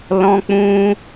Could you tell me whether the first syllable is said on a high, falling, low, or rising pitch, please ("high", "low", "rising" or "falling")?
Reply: high